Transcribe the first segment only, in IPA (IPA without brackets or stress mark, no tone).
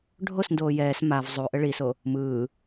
ɖʱ